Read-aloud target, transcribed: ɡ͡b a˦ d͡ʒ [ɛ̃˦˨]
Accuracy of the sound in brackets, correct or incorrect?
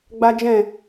correct